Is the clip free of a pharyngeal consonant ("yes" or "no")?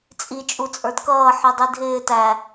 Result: no